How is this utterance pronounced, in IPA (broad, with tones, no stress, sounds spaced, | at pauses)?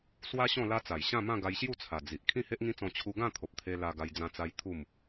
s w a˦ ɕ ɔ̃˥˧ l a˦ t͡s a˨˩ j ɕ ã˥˧ m ã˥˧ ɡ a˧ j ɕ j u˥˧ t͡sʰ a˨˩ d͡z i˨ ʔ kʰ ĩ˥˧ h e˦ ʔ ŋ ĩ˦ t͡s ɔ̃˧ t͡ɕʰ u˧ ɡ ã˥˧ t̪ʰ o˨ p̚ t̪ʰ e˧ l a˧ ɡ a˧ j d͡z ã˧ t͡s a˦ j t̪ʰ u˥˧ m